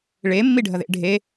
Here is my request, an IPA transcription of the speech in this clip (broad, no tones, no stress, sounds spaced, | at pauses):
ɭ e mː i ɖʱ ɐ ð ḛ ɖʱ e